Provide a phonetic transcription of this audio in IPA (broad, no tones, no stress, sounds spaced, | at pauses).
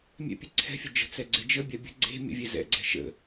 mʲ ɛ̰ pʲ ɐ ǀʰ ɛ̤ fʲ ɐ d͡ʒ ə̤ t͡s ɛ ɡ͡ǀ e d͡ʒ ə bʲ a bʲ ə̤ ɡ͡ǀ e̤ mʲ ə̰ vʲ ɛ z ɛ̰ ɡ͡ǀ ɛ̤ ʃ ə̰